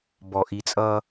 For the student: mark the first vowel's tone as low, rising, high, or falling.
low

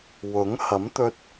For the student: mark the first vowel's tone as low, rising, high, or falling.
rising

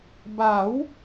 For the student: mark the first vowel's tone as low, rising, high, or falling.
rising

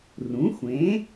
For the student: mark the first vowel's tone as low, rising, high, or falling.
rising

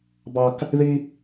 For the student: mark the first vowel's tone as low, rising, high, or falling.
high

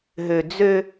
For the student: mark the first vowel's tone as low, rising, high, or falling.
low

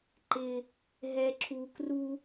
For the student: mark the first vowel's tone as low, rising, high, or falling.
high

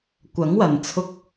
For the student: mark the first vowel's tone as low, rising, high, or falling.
rising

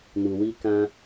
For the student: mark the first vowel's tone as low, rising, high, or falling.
low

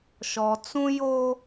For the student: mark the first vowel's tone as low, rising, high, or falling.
low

